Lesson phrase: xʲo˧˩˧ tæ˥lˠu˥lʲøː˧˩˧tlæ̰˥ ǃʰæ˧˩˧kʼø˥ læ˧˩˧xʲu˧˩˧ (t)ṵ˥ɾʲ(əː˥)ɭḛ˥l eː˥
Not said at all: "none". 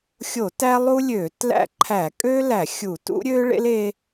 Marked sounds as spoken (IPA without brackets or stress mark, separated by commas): t, øː˥